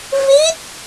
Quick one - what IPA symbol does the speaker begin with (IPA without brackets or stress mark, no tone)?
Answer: v